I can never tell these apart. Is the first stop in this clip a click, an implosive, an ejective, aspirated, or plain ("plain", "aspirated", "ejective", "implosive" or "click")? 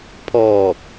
aspirated